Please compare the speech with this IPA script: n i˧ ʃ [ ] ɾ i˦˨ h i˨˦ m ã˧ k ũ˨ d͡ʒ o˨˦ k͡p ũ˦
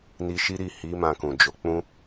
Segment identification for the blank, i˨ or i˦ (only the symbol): i˦